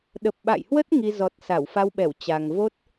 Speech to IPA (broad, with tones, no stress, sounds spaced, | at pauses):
ɗ ə˨˩ p̚ ɓ a̰˧˨ j h w ə˦˥ t̚ ŋ i˧ z ɔ˨˩ t̚ s a˧˩ w f a˧ w ɓ ɛ˧˩ w t͡ɕ a˨˩ ŋ v o˦˥ t̚